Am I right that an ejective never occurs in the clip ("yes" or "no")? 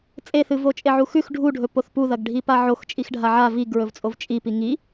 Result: no